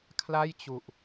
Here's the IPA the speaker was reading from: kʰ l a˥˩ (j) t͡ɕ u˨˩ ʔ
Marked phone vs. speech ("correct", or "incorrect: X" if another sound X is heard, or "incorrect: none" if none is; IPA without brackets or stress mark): correct